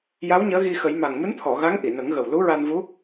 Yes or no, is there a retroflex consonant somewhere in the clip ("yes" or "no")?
no